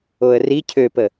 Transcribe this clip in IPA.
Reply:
o ə̯ r i cʰ ø p ə

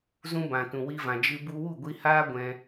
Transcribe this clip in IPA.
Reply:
z ũ˧ b ã˨ t ũ˨ w i˧ v ã˨ d͡ʒ ɨ˧ b u˧ w u˦˨ ɡʷ i˧ h aː˦ ɡʷ ɛ̃˧

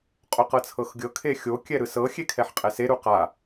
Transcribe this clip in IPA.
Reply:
qʼ o q ɤ t͡sʰ ɤ x ɡʲ ɤ kʰ e xʲ o kʲ ɛ ɾ ɯ s ɤ xʲ e kʰ ɛ ħ qʼ ɛ s e ɾ u q a

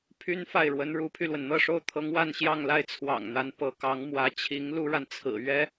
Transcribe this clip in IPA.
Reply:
pʰ y˥ n f a˥˩ ɪ̯ ɻ w ə˧˥ n ɻ u˧˥ pʰ y˧ l w ə˩ n n̪ ɤ˥˩ ʂ o˥ ʊ̯ t̪ʰ ɤ˧˥ ŋ w a˥˧ n ɕ j ɑ˥˧ ŋ l a˥˩ ɪ̯ t͡sʰ w ɑ̰˨˩ ŋ n̪ a˧˥ n p ɤ˧˥ k ɑ˧˥ ŋ m w ä˧˥ t͡ɕʰ i˧˥ ŋ l u˥ ɻ a˨ n t͡sʰ ɹ̩˨˩ ɥ ɛ˥

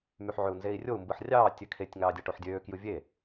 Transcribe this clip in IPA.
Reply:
m y ħ ʕ ø u̯ n z e i̯ rʲ o u̯ m b ɯ ħ rʲ ɑː tʲ ø kʰ e tʲ ŋ ɑː dʲ ɑ ʈ o ħ dʲ øː k j ɯ vʲ e

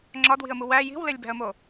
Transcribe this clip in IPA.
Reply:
ŋ͡ǁ ɒ d w i̤ ə̯ m u w æ j i̤ w l e lʲ b æ̤ ə̯ m o

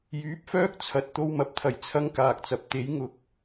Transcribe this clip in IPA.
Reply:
j yː˨˥ p̚ f œː˥ k̚ t͡sʰ ɐ˨ t̚ t̪ o˧ w m ɐ˨ p̚ t̪ʰ ɐ˨˩ j t͡sʰ ɐ˥ ŋ k aː˨ k̚ t͡s ɐ˨ p̚ t̪ e˨˥ j ŋ ʊ˨˥ k̚

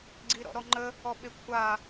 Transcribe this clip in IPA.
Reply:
ɡ͡ǀ i ɾ ɔ̰ ɾ ɔ ŋ͡ǃ ə | ɔ ɓ e kʷʰ a

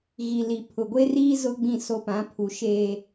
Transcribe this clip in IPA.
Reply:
ɣ i˨ l i˨ pʰ ʊ˨ ɡʷ e˦ r iː˦ z ʊ˦ ɡ͡b ĩ˦˨ s o˦ p ã˨˦ pʰ u˨ ʃ e˨

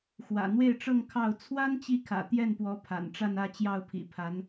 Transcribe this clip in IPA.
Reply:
x w ä̰˨˩ n̪ w e˥˧ ɪ̯ ʈ͡ʂ ɤ˥˧ ŋ kʰ ɑ˥˩ ʊ̯ t͡sʰ w a˥ n t͡ɕ i˧˥ kʰ ä̰˨˩ t̪ j ɛ˥˩ n p w ɔ˧˥ pʰ a̰˨˩ n ʈ͡ʂ a˥˧ n ä˥˧ t͡ɕ j ɑ˥˩ ʊ̯ pʰ ḭ˨˩ pʰ a˧˥ n

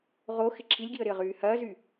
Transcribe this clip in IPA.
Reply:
ʁ o x ɪ ǁʰ i lʲ ɡ i ə̯ ɾ ɪ ə̯ ʁ yː h ɐː z y

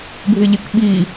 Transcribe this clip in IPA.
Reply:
bʱ ɪ ʎ ɪ k ɓ i

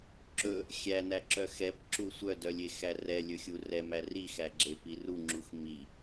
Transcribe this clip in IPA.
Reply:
ǁ ɵ | xʲ æ n æ ǁ œ x ɛ p ǁ u sʷ œ d œ lʲ e x æ r ɛ lʲ ɵ xʲ u r ɛ m æ r i x æ ɡ͡ǁ e p i r u ŋ͡ǁ u x m i

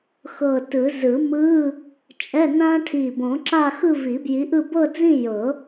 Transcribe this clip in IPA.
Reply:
x ɤ˧˩ t ɯ˨˩˦ z ɯ˨˩˦ m ɯ˧˥˧ | t͡ʃʼ ɛ˧˥˧ n ã˥ ʈʰ i˧˩ b õ˨˩˦ ǁ a˥˧ x ɯ˥˧ v i˨˩˦ b j i˨˥ ʔ ɯ˥˧ b ɤ˥˧ d͡z ĩ˥˧ j ɤ˨˩˦

